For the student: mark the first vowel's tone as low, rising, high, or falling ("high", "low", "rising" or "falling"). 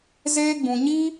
high